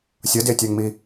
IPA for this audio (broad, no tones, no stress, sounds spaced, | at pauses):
sʲ ʌ d e tʲ a ŋ m i